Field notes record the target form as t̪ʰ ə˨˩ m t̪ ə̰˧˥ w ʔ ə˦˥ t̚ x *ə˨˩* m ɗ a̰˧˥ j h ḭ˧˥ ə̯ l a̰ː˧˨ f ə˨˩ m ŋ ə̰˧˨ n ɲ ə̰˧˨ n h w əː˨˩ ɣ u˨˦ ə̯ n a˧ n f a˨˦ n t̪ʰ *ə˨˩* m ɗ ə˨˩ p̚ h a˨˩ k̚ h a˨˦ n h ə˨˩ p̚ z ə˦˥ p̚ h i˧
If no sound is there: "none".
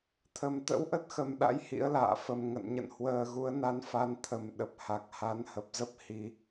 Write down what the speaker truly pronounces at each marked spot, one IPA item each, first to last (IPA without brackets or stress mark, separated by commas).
ə˨˩, ə˨˩